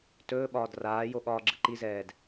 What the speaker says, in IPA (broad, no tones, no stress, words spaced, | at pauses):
tɵːɓɒːd raːjo ɠɒːɡ͡ǁɯǃizɛːd